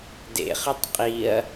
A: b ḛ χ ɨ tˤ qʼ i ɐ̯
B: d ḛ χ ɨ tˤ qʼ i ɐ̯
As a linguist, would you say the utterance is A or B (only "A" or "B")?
B